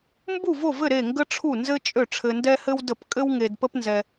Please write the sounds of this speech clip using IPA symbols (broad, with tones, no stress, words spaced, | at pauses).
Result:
mbu˥˩vo˥˩vɘ˥˩ ɾe˥˩ŋɡə˥ ʈ͡ʂʰu˥˩nzɘ˥t͡ʃʼø˥˩ ʈ͡ʂʰɘ˧ndɛ˥hɘ˥wdə˥˩p kʼɘ˥wŋe˧dpə˥p nzɛ˧